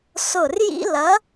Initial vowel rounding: rounded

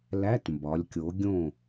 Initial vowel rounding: unrounded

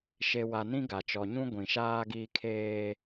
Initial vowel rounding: unrounded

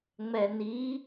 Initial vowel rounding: unrounded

